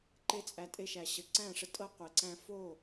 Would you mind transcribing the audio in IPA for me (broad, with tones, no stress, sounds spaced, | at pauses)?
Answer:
ǃ e˦ t͡sʼ æ˧ tʼ e˧ ʃ æ˨ ɕ ə˨ ǀ æ̃˦˨ ʂ ə˧ tʼ ɤ˦ qʷ e˨ ǀ æ̃˧ f o˦˨